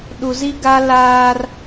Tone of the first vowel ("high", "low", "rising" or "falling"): low